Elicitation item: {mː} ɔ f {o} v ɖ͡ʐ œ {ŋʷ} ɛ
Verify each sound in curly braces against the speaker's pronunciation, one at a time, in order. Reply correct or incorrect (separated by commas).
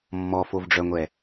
correct, correct, correct